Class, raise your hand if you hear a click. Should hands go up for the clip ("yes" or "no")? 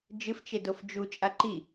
yes